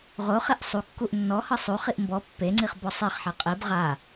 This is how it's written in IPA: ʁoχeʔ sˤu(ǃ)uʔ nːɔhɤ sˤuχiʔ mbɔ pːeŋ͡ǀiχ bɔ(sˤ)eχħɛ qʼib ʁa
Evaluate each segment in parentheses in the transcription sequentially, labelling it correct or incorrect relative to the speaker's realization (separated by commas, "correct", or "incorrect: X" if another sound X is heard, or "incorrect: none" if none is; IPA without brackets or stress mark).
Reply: incorrect: kː, correct